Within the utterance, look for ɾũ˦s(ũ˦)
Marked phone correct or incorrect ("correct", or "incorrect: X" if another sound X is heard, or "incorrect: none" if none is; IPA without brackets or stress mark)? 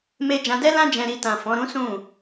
incorrect: ũ˦˨